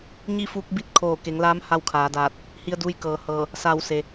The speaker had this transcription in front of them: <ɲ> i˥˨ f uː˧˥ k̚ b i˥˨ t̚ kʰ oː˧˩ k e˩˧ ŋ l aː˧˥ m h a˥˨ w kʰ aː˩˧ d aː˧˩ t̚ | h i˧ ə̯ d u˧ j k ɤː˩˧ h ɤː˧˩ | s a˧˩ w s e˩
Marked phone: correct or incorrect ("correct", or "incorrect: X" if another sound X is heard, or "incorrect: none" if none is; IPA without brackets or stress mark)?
correct